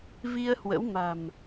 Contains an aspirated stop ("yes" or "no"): no